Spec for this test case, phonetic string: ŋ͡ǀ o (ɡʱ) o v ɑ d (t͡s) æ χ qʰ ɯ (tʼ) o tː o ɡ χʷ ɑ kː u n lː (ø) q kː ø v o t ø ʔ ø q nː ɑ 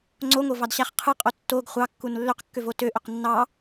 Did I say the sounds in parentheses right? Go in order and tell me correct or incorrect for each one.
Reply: incorrect, incorrect, incorrect, correct

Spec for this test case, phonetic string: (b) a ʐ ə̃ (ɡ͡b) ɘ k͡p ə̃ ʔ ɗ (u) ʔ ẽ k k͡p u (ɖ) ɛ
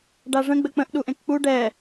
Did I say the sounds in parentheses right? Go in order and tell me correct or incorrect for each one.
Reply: incorrect, correct, correct, correct

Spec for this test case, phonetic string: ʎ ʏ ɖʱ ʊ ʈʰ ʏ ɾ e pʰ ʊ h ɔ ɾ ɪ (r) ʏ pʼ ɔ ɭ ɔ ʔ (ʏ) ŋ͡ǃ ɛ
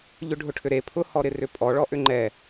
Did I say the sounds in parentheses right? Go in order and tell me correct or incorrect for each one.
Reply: correct, correct

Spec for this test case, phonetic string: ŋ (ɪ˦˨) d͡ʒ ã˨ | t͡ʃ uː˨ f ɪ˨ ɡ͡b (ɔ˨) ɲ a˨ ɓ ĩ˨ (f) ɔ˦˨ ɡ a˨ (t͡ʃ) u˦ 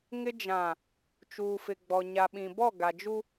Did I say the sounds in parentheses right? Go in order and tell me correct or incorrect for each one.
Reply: incorrect, correct, incorrect, incorrect

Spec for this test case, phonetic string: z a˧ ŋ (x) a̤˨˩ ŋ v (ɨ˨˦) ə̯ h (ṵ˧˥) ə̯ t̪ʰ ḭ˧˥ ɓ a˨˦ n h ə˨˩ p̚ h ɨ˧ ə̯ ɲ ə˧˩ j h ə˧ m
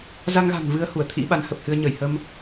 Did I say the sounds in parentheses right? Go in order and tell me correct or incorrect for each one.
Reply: incorrect, incorrect, incorrect

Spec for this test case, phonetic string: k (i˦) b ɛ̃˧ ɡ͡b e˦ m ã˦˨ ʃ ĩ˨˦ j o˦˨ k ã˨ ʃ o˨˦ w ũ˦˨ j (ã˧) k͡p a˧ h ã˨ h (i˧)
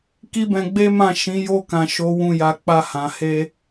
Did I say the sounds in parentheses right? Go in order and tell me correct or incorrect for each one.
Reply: correct, incorrect, incorrect

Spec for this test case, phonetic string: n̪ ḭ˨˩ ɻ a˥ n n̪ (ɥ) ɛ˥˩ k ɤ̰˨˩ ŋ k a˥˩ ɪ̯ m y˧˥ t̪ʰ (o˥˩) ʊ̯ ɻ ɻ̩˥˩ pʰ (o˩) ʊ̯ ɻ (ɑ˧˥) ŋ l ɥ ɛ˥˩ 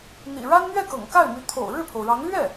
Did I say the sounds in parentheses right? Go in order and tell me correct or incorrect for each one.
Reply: correct, incorrect, correct, correct

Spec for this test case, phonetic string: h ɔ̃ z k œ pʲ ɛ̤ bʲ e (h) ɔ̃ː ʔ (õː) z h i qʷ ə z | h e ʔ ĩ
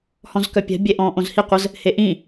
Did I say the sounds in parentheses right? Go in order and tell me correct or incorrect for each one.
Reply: incorrect, incorrect

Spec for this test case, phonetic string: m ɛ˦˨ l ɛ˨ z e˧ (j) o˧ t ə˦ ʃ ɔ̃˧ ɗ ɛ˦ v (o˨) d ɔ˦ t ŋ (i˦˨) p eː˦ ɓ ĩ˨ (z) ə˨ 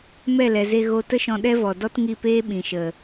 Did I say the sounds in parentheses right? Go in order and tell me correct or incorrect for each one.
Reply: incorrect, incorrect, correct, incorrect

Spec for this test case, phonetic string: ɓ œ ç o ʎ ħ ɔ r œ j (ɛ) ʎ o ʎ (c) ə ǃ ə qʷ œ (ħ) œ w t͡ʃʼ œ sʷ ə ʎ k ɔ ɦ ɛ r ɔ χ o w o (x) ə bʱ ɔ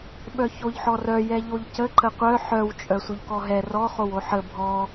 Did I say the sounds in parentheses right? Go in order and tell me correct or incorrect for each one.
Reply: correct, correct, correct, incorrect

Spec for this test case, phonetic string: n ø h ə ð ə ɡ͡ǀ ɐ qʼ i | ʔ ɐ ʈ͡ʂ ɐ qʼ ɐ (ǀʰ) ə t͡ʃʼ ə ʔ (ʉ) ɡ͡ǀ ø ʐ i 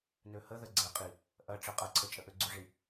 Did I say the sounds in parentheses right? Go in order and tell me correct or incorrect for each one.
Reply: correct, incorrect

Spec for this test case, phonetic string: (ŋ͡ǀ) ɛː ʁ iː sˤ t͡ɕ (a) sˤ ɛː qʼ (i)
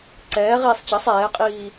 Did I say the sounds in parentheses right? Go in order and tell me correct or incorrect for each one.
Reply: incorrect, incorrect, incorrect

